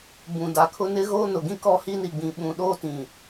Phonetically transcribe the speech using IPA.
b ũ˨ d a˨ kʰ ʊ˦ n ɪ˦ ɣ oː˦ n ʊ˨ ɡ ĩ˦ k ɔ˦ h i˦ n i˨ ɡ͡b ĩ˨ ɓ ũ˨ ɗ oː˦ t ĩ˨

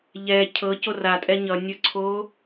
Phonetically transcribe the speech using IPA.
ʎ ɛ cʰ ɤ c o r a tʼ ɛ ɲ ʌ nʲ ə ǀʰ o

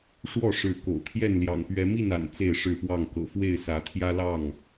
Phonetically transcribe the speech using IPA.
ʂ w ɔ˥˨ ʂ ɻ̩˨˦ k o̰˨˩ ʊ̯ t̪ʰ j ɛ˥˨ n l j ɑ̰˨˩ ŋ p ɥ ɛ˨˦ m i˥˨ n a̰˨˩ n t͡s e˥˨ ɪ̯ ʂ ɻ̩˥˨ p w ɑ˥˨ ŋ k ɤ̰˨˩ f w e˥˨ ɪ̯ s ä˨˦ t̪ʰ j ä˦ l ɑ˥˨ ŋ

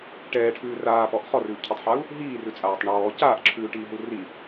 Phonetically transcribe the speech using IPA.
ʈ ɛː ʈʰ ʉː r aː p ɔ ʔ χ ɔ r ʉː ʔ cʰ ɔ tˤ ħ a u̯ | ɦ iː r ʉ t͡sʼ aː tˤ ɳ ɔː c aː ʔ ǁʰ ʉː ʈ iː ɦ u r i

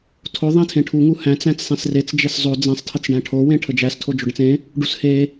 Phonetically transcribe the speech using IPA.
tʰ o ðˤ æ̃ tʰ ẽ ʈʰ u ŋ u h æ̃ t͡s æ̃ t͡s sˤ ẽ s r e t͡s d͡ʒ e s zˤ o d͡z ẽ sˤ tʰ ə t͡s ɖ æ̃ ʈʰ o w ẽ ʈʰ ə d͡ʒ æ s tʰ o d͡ʒ o ɖ ə̃ t͡s ẽ | ɖ u s h e

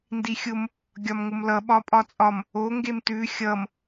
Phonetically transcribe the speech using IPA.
n d i xʲ ʊ m | ɡʲ ɒ m ŋ ʊ m l ʌ ɓ ɒ pʼ ɒ t͡sʼ ɒ m | o ŋ ɡ e m t ʉ xʲ ʌ m

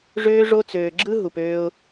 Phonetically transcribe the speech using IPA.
ʐ øː˦ ʐ o˦ t͡s øː˧ ɡ͡ǁ ɯ˦ ɦ u˨ p øː˧ ʊ̯

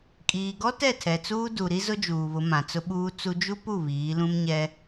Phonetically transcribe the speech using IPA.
kʼ iː˨ ɡ ɔ˦ t ɛ˦˨ tʰ ɛ˨ t͡s uː˦ d u˨ ɾ i˦ z ʊ˦ d͡ʒ uː˨ β ʊ˨˦ m ã˨ t͡s ʊ˦ ɓ uː˦ t͡s u˦ d͡ʒ u˦ p u˦˨ β iː˨˦ l ũ˦ m ɲ ɛ˦

